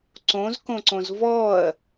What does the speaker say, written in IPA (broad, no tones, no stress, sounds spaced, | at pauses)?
ǀ õ z k õ ǀ õ z v ɔ ɐ̯